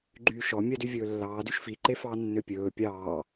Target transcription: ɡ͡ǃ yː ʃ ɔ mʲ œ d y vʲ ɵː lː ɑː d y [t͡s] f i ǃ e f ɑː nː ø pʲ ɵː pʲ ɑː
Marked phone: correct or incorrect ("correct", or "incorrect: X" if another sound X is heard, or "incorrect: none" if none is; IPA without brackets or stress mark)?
incorrect: ʃ